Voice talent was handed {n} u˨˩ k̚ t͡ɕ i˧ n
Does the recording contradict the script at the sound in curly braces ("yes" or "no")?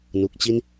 no